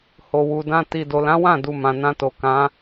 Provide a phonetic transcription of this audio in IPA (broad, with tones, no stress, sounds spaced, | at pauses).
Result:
h o˨ w u˨ d ã˧ t i˨ d o˨ l ã˨˦ w ã˦˨ d u˨ m ã˨ n ã˧ t o˨ k ã˨˦